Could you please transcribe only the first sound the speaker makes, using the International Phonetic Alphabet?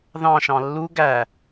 ð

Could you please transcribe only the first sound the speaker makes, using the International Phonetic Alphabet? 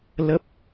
l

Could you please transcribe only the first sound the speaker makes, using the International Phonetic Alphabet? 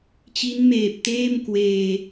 t͡ɕ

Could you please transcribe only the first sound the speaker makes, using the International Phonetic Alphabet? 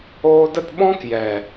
oː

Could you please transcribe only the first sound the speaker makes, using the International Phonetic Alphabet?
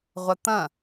ʁʷ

